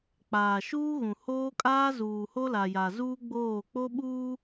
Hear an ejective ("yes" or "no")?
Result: yes